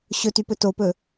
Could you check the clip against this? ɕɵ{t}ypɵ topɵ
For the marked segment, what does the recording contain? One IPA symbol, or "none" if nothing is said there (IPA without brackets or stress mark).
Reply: t